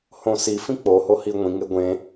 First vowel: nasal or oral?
nasal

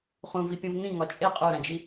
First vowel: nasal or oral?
nasal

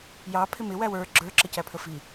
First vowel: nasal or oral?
oral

